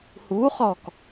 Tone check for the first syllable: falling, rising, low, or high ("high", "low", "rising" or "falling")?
rising